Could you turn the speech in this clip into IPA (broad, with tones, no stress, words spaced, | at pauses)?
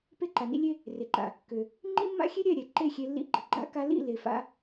pe˦ǃa˨nḭ˦ lʲe˦ | re˨ǃa̰˨ | kø˨ | ŋ͡ǃḭ˦mːa̰˦xʲe˦ɾʲɛ˦˨ ɾʲɛ˨ǃe˦˨xʲe˧ lːḭ˧ɡ͡ǃə˨ ɡ͡ǃa̰˧ka˧lḭ˦˨ le˨fa̰˨˦